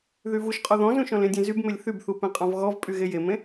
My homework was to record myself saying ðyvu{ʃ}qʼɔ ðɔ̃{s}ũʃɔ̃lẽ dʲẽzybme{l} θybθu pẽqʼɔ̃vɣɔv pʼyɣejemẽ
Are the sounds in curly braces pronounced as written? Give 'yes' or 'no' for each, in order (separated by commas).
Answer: yes, no, no